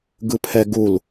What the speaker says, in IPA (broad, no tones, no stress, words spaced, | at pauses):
ɡɯpʰɛɡul